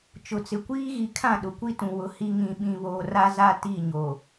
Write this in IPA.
t͡ʃ ʊ˨ t͡s ɪ˨ kʷ iː˦ ɣ i˨ kʰ ã˦˨ ɗ ʊ˨ kʷ i˦ t ũ˨ w ʊ˨ h i˦ ŋ ĩ˨ ɓ ĩ˨ β oː˨ r a˦ z a˦ t i˦˨ ɲ o˨

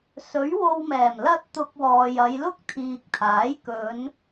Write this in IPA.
s ɵ˨˥ ɥ w o˧ w m ɛː˨˩ m l ɐ˥ t̚ t̪ ʊ˧ k̚ w ɔː˨ j ɐ˨˧ j l ʊ˥ k̚ t̪ʰ iː˨ k̚ t̪ʰ aː˨˥ j k ɵ˨˧ n

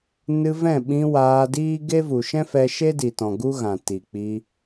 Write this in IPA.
n ɨ˧ v ɛ̃˦˨ ɓ ĩ˧ w aː˧ d iː˦ ɡ e˦ v u˨ ʃ ɛ̃˦ f ɛ˧ ʃ e˦ d i˨ t ɔ̃˨ ɡ u˦ ɣ ã˨ t i˨ k͡p i˧

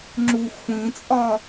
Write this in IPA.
ŋ͡ǁ u xʷ ĩ t͡sʼ ɒ

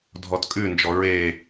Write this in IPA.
dʱ ɔ t kʼ ʉ n d͡ʒ ɔ ɹ e

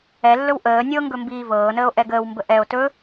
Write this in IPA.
ɛ lː ɵ w ʔ əː nʲ ɤ ŋ ɡ ɵ m b iː v ɤː n əː o̯ ʔ ɛ ɡ əː w m b ə ʔ ɛ o̯ t ɵ

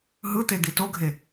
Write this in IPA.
ɦ ɯ t̪ e d̪ i t o ɡʱ e

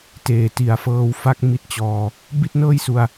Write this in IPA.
t eː˨˩ t i˨˩ a̯ f ɤː˧ w f a˥˩ k̚ m i˥˩ t̚ t͡ɕ ɔː˧ | b i˥˩ t̚ n ɤː˥˩ j s u˧ a̯

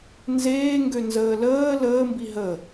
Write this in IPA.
n z eː ŋ ɡ ø n z əː l əː l əː m b i ɦ ə

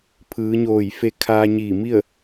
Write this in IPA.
pʰ ɯː˩˧ ɲ oː˧˩ j f e˧ kʰ aː˧ ɲ iː˧˩ m i˥˨ ə̯

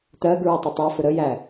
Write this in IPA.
t ɜ ɡ ɹ ə tˤ ʊ tˤ ɑ f ʊ ɾ ə j æ

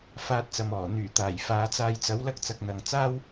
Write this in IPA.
f aː˧ t̚ t͡s ɐ˨ m ɔː˨˩ n̪ yː˨˩ t̪ aː˨˩ j f aː˨˧ t͡s aː˧ j t͡s ɐ˨˥ w l ɐ˥ k̚ t͡s ɐ˧ k̚ n̪ ɐ˨ ŋ t͡s aː˥ w

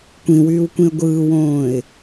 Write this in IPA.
kʷ ĩ w yː w kʷ ĩ ə̯ ɡʷ ɯː w õː ɪ̯

